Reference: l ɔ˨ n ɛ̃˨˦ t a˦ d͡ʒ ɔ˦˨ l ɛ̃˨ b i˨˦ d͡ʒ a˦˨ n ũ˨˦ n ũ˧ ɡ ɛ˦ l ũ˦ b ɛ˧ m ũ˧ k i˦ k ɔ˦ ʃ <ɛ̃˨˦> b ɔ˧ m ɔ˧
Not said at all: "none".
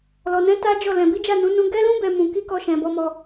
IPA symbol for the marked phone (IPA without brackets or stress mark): ɛ̃˧